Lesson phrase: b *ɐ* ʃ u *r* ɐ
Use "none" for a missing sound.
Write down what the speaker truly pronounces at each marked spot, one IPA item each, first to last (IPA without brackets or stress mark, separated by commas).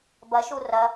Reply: ɐ, r